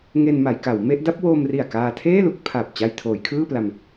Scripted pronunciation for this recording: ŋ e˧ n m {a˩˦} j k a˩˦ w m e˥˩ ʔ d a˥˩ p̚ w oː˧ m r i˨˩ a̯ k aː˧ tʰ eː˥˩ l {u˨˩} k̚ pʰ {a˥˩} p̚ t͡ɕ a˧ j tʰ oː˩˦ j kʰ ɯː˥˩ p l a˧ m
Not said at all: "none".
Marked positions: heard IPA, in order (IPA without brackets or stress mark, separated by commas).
a˩˦, u˦˥, a˨˩